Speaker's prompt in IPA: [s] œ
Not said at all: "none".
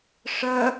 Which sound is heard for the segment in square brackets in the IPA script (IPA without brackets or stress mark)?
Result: ʂ